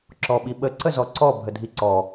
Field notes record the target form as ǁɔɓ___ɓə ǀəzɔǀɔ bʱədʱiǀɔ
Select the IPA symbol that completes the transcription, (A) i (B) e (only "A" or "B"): A